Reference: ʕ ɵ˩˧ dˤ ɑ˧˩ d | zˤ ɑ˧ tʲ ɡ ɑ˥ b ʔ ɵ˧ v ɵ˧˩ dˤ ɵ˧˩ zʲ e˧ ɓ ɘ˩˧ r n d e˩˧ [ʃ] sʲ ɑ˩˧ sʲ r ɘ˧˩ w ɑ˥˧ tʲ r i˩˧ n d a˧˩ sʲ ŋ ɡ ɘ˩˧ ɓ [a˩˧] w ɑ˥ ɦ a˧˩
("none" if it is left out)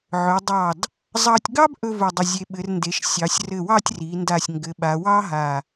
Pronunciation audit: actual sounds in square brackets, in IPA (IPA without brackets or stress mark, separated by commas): ʃ, a˩˧